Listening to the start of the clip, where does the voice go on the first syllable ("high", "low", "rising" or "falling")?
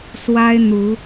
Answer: high